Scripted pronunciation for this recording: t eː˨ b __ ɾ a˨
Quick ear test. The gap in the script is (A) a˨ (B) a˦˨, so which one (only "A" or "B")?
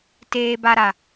A